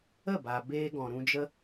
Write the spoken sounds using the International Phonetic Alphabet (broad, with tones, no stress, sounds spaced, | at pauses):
ə˦˨ b a˧ b eː˧ ɡ ɔ̃˨ ɾ ũ˧ d͡ʒ ə˦